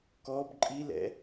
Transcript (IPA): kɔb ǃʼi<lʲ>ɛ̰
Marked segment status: incorrect: l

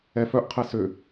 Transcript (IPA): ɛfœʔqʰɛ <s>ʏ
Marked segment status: correct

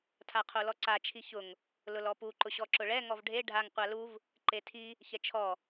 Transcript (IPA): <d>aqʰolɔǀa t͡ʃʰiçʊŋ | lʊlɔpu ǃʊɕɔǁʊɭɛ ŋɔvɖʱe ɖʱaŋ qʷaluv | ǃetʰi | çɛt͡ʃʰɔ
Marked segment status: incorrect: tʰ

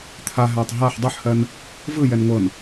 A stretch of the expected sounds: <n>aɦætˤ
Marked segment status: incorrect: t̪ʰ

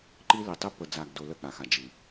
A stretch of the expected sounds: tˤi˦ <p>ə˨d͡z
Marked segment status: correct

